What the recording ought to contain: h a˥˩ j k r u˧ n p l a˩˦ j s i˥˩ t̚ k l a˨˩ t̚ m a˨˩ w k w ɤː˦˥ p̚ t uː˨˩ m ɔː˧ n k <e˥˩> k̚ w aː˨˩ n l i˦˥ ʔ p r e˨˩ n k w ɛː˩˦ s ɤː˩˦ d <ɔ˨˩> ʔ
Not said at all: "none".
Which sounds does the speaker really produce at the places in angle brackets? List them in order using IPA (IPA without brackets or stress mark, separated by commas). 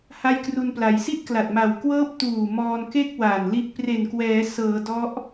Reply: e˥˩, ɔ˦˥